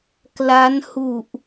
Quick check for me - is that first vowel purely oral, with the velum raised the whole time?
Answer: yes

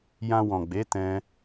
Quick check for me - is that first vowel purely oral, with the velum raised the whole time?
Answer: no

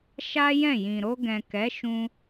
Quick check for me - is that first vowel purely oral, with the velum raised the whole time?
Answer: yes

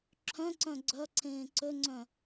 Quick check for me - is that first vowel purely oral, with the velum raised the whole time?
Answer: no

